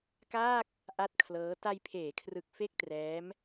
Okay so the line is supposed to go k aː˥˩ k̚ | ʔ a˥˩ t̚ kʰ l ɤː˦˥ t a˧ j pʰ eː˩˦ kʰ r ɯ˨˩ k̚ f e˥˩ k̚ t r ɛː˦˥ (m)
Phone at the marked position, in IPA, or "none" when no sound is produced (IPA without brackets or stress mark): m